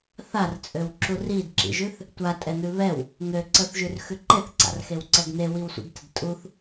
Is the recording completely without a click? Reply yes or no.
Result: no